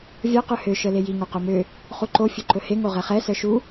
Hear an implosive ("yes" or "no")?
no